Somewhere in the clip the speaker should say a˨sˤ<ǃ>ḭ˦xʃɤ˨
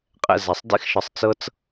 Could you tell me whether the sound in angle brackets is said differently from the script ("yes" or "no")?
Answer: yes